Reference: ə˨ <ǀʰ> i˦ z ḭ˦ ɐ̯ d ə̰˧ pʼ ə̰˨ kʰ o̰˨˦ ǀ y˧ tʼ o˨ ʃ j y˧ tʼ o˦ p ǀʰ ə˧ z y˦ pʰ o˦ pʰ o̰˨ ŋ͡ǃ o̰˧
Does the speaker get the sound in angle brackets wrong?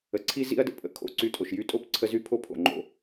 no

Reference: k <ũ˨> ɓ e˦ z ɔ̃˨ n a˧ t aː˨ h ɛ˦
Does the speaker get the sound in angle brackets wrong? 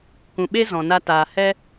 no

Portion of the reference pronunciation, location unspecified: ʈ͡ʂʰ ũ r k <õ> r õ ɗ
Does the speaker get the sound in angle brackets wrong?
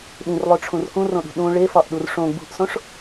yes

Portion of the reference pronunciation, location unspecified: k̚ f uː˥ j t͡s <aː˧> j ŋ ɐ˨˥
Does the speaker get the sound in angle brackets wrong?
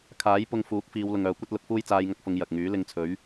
no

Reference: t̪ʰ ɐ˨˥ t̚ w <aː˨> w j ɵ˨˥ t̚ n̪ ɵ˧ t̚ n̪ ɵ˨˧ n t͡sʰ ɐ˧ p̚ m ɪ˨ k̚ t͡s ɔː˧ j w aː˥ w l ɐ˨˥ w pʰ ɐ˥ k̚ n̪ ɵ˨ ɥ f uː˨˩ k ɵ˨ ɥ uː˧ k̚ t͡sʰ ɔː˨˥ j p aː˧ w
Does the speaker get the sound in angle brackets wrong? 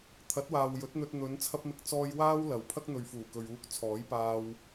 no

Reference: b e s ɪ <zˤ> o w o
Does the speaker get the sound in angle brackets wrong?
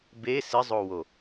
no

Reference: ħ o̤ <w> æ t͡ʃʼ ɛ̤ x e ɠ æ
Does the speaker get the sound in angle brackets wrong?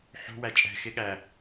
no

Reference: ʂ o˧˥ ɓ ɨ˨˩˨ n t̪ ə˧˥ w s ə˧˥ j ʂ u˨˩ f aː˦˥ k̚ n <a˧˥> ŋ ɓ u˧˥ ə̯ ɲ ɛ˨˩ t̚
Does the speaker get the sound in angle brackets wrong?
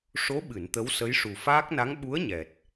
no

